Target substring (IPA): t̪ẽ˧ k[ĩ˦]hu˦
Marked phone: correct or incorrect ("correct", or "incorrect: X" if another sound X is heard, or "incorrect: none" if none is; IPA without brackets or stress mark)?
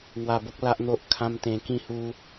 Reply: incorrect: ĩ˥˧